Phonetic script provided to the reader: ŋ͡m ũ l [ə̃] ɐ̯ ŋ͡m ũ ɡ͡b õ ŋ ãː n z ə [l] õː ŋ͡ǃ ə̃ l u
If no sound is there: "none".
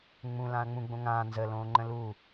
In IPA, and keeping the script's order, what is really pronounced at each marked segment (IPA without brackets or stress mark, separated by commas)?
ã, l